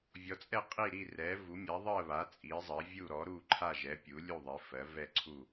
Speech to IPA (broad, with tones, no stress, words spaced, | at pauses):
vʲɔ˩˥t͡sʼɛ˥˨ qʼi˥˨ ɾi˥˨rɛ˩˥ vu˩˥mʲa˩˥ ðˤɜ˥˨βa˩˥ t͡sʼi˩˥zˤɜ˩˥vʲu˥˨ ɾɔ˩˥ ɾu˥˨ǃʰa˥˨ʒɛ˩˥ pʲu˩˥lʲu˥˨ðˤi˩˥ fɜ˩˥vɛ˥˨ǀʰu˥˨